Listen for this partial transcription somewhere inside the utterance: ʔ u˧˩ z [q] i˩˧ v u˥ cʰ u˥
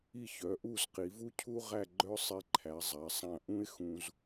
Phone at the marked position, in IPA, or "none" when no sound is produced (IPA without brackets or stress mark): q